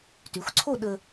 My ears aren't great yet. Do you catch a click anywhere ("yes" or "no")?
yes